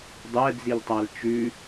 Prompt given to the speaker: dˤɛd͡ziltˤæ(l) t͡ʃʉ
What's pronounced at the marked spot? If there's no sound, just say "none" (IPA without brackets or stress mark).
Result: l